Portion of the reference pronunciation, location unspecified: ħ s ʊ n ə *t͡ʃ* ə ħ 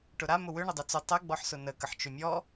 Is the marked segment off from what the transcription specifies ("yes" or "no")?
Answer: yes